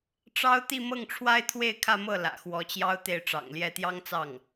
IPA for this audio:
ʈ͡ʂɑ˥ʊ̯ t̪i˥˧ mɤ˥˩ŋʈ͡ʂʰwa˥ɪ̯ t̪ʰwe˥˧ɪ̯kʰä˥˧mɤ˥˩ lä̰˨˩ xwɔ˧˥t͡ɕjɑ˥ʊ̯ t̪e˥˩ɪ̯ʈ͡ʂɑ̰˨˩ŋljɛ˥˩ t̪jɑ˥ŋt͡sɑ˥˩ŋ

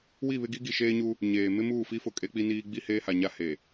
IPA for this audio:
wi˦˨βɪ˦ɡi˦ ɡi˨ʃeː˦ɲu˦ | ɲeː˨ mɪ˦muː˦˨fi˦fʊ˨ kʼe˦k͡pi˦niː˦ ɡ͡bi˦ heː˦ha˨ɲa˦ he˨

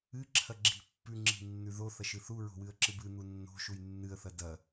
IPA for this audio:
ɨ ǁʰɐɡ͡ǁi̤ pːʉŋ͡ǁi̤ nːʉðo θɐʃɨθu ɹo̤wɨə̯ǁɨbɨ n̪unːo̤ ʃujnːɨə̯θɐ dɐ

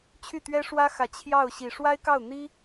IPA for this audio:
t͡ɕʰy˥˩t̪ɥɛ˥ʂwä˥xä˨˩ t͡ɕʰjɑ˥˩ʊ̯ɕi˨˩ ʂwa˥ɪ̯kɑ˥˩ʊ̯n̪i˥

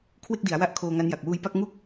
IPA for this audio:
kʰwe˥˩k̚di˩˦a̯wa˦˥ʔ kʰoː˧ŋa˦˥nja˨˩k̚ wuː˧jpa˥˩k̚ ŋu˥˩k̚

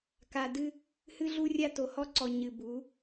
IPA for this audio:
ka˨dɨ˦ | hɨ˦ɮu˦rʲa˦ to˨hɔ˦ǀɔ˨ ɲɨ˨ bu˨˦

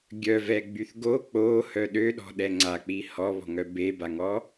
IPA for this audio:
ɡʲœvɛɡ͡byθ ɡo k͡pohœ ɗøɗɔ̤ɗɛ ŋ͡ǀak͡pi hɔβɔ̤ŋœ bebaŋɔ

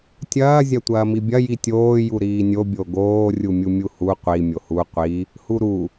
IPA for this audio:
tʲɐː zʲɐtʷɐːmibʲɐ jitʲoː juɾiːnʲo bʲoɡoː rʲumʲumʲuhu qʷi mʲohu qʷi | huɾu

